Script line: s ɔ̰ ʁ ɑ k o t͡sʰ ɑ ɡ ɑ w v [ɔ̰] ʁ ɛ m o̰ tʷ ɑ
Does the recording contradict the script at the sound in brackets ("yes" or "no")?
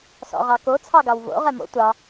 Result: yes